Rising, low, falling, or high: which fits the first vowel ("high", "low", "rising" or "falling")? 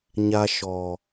low